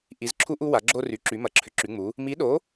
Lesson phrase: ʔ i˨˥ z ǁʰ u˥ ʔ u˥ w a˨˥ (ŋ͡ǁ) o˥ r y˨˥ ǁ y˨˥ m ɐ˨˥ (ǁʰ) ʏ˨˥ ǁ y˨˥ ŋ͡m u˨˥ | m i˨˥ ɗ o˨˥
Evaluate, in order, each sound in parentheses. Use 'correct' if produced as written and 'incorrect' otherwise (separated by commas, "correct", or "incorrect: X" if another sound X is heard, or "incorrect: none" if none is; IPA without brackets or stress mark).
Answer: incorrect: ɡ͡ǁ, correct